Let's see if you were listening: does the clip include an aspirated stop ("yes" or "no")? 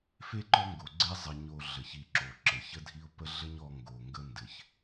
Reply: no